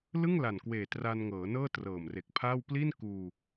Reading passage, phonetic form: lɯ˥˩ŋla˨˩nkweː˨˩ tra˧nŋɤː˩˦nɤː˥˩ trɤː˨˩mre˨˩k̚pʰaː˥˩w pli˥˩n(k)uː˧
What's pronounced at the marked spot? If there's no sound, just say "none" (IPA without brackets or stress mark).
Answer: k